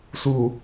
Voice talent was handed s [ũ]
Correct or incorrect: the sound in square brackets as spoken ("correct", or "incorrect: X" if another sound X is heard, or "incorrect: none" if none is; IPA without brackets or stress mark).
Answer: incorrect: u